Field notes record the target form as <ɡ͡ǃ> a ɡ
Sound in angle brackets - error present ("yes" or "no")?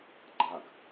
no